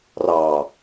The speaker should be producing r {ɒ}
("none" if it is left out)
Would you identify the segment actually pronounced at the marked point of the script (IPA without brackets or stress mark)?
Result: ɑ